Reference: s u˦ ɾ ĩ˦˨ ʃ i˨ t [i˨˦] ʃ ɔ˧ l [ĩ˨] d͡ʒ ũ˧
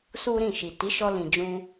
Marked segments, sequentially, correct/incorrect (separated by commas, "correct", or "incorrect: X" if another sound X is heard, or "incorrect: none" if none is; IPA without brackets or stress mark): correct, correct